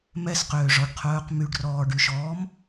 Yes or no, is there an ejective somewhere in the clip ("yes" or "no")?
no